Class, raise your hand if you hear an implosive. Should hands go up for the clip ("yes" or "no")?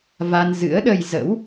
yes